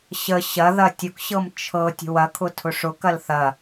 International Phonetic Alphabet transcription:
ɕə ɕɐðɐ tʲʊkɕɤm t͡ʃʰɤ tʲə̤wɐkʰʊ tʰʊʂʊkɐl θɐ

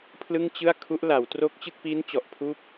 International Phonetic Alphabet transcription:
pʰlɯ˥˩ŋt͡ɕɯ˥˩a̯ kʰu˦˥ʔla˩˦w tro˦˥k̚t͡ɕɯ˥˩k̚piː˦˥n t͡ɕɔ˨˩ʔpʰuː˥˩p̚

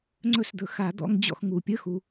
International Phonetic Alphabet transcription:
ŋ͡ǀɵ˥˩sd̪ɵ˨˩˦ xa˨˩˦d̪ɔ̰˧˥˧ŋd͡ʑɔ̰˥˩x ŋu˩pʲə˧˥˧xu˩

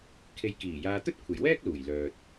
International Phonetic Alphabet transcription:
kʰe˧jkiː˨˩jaː˧ t̪ɵ˥t̚kʷʰe˨˩jwɛː˥k̚ luː˨˩jlœː˨t̚

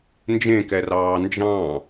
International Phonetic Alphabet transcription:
nd͡ʒẽkɛrɑː nd͡ʒɑ̃

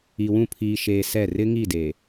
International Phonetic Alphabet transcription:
i˨wũ˦˨ pʰiː˨ʃeː˨ sɛ˦˨ rɪ˦ŋi˦˨de˨

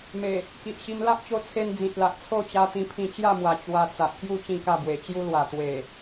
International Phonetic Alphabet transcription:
me˨˩ | ki˨ʔɕi˧m la˦ʔt͡ɕo˧t͡sʰe˧n d͡zĩ˨t̚la˨ʔt͡sʰo˥˧ t͡ɕa˧t̪ĩ˧pʰĩ˧ t͡ɕja˥˧mwa˨˩ t͡ɕwa˧ t͡sa˨ʔkju˥˧ t͡ɕĩ˥˧ka˥˧bwe˨˩ t͡ɕju˧lwa˨˩ t̪we˨˩

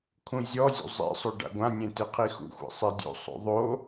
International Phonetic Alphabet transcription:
kʰũzʲɔzʲṵ zˤḛsˤo ɖa̰ɡʷãnʲẽ teqʰixṵxʷḛ sˤedʲo̰sˤo̰ ðˤo

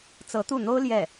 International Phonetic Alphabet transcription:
t͡sɤ˧˥t̪u˥˩n̪o˥ʊ̯ ljɛ˥˩

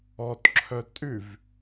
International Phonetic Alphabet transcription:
ɔtǁʰœ tʼʉv

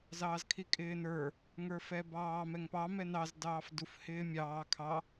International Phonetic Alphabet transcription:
zɑːzkʰikʼɪːnə˞ | ŋə˞fɛbɑː mɛŋpɑ mɛnɑz dɑːfduf hɪːmʲɑː kʰɑ

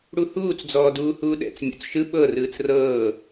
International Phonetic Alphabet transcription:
ɽuhuːt͡sd͡zɔːduː huːɗɛ̰t͡s mʲo̰t͡sʃɯ ɓɤrɯːt͡s rɤː

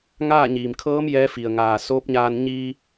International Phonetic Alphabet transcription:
ŋaː˥˨ ɲiː˩mkʰɤː˧˥m jɛː˧˥fi˩ə̯ ŋaː˩ soː˧˥p̚ɲaː˧n ɲiː˧

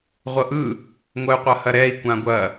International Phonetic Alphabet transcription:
ʁʷɤʔɯ | ŋʷɐy̯qʷɐhɐɾɛi̯ kʷãɡʷɐ

